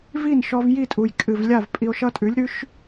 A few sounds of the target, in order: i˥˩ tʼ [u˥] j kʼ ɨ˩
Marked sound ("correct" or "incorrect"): incorrect